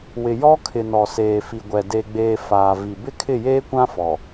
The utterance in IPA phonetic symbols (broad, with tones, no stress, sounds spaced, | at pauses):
w ɪ˨ j ɔ˦ kʰ ɪ˨ n ɔ˨ s eː˨ f i˨ ɡʷ ɛ˨ d e˨ ɡ͡b eː˨ f aː˨ v i˨ b ɪ˦ kʰ ɪ˦˨ j eː˦ kʷ ã˦ f ɔ˨